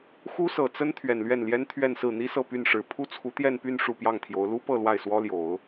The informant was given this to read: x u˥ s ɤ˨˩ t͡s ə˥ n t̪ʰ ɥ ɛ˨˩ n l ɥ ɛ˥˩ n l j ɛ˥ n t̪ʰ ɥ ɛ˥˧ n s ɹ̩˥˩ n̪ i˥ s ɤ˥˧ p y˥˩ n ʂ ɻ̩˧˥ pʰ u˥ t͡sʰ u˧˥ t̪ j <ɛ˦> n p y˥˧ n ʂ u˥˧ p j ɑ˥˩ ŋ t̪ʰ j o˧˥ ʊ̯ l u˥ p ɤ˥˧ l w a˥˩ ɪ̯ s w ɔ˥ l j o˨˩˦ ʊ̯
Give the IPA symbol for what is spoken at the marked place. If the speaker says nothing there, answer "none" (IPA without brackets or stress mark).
ɛ˥˧